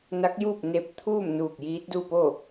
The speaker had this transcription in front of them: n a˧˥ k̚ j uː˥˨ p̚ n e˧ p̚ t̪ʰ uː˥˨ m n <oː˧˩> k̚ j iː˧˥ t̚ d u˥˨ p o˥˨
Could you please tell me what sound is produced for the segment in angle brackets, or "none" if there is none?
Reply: uː˧˩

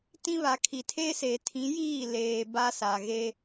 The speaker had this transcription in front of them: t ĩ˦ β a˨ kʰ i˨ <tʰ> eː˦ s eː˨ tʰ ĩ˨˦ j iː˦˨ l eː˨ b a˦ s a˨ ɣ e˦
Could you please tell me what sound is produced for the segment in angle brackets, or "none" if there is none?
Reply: tʰ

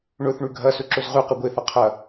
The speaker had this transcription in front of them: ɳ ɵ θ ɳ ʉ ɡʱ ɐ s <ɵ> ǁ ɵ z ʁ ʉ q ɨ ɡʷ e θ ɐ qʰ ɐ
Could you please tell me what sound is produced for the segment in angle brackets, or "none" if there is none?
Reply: ɵ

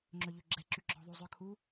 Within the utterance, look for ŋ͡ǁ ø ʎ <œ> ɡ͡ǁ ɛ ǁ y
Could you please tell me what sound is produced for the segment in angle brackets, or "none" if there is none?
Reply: ø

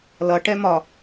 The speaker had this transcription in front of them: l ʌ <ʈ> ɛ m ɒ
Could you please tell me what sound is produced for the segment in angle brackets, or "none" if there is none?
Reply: ʈ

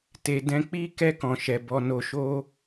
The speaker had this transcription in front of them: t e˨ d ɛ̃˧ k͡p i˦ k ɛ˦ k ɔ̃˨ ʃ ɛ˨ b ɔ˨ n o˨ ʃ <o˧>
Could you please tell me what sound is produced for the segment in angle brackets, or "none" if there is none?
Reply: o˧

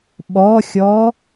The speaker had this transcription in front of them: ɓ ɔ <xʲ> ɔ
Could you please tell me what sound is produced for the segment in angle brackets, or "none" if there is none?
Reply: xʲ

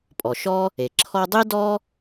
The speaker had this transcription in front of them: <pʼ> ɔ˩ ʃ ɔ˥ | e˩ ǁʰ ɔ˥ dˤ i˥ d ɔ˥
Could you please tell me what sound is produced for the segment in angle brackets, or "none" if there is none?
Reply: pʼ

